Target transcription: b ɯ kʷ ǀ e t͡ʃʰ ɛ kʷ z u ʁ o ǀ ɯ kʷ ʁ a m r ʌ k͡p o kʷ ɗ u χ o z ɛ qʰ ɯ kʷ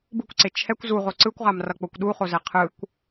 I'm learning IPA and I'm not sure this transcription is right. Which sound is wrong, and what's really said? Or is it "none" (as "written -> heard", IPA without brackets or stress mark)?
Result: none